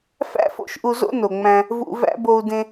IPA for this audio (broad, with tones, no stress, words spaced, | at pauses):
fæ̰˥fo̰˧ʃ ʔu˧zo̰˥ no˩ŋ͡mæ̃˧ | vṵ˧væ̰˥ bo˧u̯dẽ˧